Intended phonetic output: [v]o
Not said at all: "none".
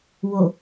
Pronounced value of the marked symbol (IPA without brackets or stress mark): w